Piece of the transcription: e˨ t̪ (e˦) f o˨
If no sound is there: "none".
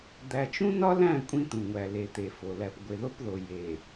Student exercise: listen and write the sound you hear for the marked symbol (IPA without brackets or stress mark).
e˨